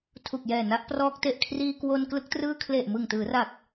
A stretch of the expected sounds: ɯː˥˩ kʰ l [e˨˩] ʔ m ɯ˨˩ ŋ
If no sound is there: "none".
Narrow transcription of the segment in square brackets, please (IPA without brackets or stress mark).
e˨˩